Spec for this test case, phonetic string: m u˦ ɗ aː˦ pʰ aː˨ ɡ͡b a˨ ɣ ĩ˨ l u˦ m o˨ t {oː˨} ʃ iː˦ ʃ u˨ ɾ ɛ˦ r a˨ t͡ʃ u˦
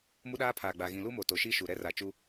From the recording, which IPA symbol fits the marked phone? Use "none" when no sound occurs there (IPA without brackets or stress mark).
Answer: o˨